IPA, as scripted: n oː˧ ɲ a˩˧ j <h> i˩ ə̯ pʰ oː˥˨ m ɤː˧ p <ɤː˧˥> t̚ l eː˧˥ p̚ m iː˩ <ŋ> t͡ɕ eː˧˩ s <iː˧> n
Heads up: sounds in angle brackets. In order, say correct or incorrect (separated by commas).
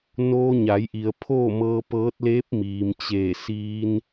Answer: incorrect, correct, incorrect, correct